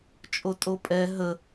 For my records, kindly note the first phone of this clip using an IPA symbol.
t͡ʃʼ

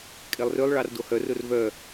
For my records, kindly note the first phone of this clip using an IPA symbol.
kʼ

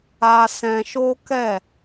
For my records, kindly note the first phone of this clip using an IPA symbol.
a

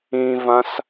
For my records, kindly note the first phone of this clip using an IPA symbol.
ĩ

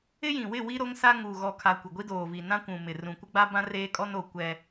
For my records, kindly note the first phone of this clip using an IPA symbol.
ɪ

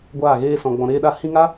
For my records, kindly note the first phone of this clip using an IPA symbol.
ɡʷ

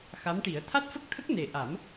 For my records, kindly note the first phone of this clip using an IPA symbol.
x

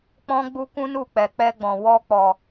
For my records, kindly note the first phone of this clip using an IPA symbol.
k͡p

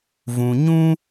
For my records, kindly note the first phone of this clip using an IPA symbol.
v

